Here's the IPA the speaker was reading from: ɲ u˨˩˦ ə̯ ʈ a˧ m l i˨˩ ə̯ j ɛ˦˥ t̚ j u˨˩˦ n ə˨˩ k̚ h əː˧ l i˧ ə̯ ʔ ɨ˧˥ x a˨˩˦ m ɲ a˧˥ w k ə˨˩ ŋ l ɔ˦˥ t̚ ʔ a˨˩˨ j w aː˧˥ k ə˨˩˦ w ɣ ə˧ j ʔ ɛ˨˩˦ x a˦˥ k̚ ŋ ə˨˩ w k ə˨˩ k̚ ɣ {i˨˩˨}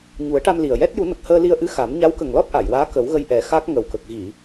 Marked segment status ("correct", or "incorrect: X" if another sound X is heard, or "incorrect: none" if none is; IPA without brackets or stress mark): correct